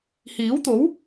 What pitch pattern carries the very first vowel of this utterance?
rising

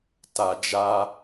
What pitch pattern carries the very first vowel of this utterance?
low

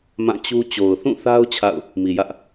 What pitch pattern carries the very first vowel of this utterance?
falling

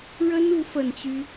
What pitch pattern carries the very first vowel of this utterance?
high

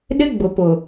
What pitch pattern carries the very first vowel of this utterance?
high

